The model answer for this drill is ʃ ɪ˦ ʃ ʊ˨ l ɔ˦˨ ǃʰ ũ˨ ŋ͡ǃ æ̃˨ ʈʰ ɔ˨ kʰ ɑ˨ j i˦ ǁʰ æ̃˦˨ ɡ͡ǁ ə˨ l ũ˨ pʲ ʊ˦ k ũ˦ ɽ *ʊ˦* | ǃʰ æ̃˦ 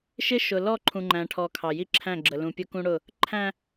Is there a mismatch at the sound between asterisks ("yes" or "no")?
yes